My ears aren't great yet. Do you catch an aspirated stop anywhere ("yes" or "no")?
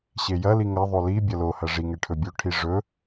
yes